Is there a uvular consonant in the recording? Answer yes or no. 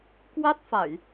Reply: no